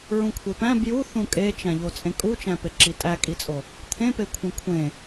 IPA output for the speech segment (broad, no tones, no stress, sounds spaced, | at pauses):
ɹ ũ kʷʰ e p æ̃ b j u θ ũ kʼ e t͡ʃ æ̃ ʎ o t͡sʼ ẽ kʼ u t͡ʃ æ̃ p e ǁ i tʼ æ kʼ i t͡sʼ o | t̪ʰ ẽ p e kʷʰ ẽ kʷʰ ẽ